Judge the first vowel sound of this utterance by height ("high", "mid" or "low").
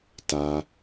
low